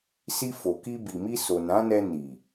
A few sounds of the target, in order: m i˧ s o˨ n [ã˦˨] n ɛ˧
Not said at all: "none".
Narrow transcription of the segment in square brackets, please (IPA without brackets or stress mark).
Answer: ã˨˦